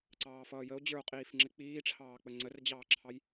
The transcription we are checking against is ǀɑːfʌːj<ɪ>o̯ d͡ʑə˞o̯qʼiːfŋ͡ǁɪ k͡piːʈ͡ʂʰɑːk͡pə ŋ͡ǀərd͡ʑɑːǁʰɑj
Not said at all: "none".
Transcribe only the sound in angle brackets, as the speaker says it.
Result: ə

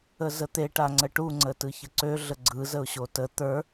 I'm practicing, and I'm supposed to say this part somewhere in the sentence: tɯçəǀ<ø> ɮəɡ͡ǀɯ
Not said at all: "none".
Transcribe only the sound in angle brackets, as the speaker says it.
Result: ø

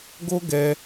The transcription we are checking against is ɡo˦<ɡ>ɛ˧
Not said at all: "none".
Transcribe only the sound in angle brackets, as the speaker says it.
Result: ɡ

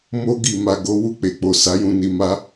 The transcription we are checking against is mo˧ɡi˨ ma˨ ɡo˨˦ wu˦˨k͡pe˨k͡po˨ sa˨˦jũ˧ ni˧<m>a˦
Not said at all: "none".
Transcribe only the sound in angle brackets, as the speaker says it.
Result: m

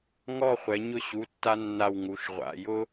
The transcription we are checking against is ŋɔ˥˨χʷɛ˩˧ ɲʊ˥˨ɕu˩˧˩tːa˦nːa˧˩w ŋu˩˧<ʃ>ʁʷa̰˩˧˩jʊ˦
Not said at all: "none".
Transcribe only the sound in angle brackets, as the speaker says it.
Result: ʃ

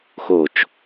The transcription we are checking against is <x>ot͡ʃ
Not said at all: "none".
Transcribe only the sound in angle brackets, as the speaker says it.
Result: x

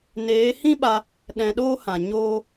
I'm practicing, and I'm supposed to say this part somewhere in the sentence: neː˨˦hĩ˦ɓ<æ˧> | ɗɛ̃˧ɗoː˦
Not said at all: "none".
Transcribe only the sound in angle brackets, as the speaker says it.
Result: a˧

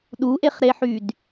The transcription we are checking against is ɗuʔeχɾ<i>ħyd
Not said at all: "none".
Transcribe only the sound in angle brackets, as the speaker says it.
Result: e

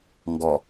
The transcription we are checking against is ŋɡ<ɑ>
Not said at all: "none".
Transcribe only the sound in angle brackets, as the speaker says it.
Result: ɔ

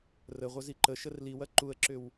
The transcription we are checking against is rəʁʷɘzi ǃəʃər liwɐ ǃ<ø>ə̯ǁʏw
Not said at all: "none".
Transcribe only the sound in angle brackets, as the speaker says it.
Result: u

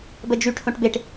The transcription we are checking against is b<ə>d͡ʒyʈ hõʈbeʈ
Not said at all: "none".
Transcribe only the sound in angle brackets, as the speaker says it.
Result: ə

